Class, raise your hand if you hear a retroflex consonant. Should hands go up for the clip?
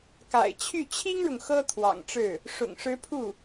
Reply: yes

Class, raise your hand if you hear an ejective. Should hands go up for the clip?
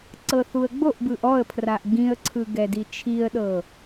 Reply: no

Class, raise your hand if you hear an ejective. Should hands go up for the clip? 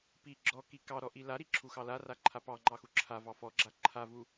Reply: no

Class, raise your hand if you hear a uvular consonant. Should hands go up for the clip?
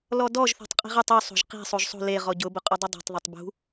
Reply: yes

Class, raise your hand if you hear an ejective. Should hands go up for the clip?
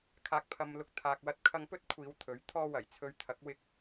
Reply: no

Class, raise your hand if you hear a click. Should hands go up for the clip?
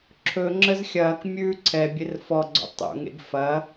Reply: yes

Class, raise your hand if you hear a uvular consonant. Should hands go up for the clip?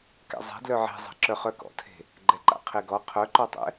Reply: yes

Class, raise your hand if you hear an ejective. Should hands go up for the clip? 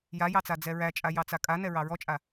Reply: yes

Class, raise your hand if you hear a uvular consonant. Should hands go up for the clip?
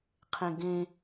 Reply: yes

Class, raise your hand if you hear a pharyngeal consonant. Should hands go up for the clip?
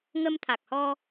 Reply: no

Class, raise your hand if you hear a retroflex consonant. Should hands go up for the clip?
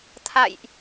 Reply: no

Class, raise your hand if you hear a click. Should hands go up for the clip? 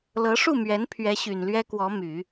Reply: no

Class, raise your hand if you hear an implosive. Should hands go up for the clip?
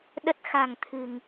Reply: yes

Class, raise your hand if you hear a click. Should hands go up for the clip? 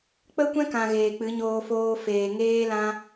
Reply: no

